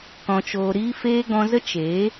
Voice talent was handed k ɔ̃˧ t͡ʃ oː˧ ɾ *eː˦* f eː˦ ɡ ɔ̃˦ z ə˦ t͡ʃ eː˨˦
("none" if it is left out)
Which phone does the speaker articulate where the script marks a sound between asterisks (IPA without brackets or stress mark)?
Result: iː˦